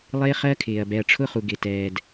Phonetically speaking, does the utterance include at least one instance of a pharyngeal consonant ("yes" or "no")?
no